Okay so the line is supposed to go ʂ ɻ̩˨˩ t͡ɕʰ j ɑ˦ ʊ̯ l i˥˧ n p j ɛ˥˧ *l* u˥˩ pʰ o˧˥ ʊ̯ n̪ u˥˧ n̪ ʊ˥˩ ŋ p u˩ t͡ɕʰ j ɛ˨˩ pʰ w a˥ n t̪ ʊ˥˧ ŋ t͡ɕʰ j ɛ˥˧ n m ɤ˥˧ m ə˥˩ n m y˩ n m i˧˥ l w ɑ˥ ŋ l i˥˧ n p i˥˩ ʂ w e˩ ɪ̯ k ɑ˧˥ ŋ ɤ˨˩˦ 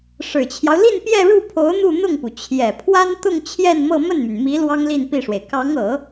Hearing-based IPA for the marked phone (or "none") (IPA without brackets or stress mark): ɻ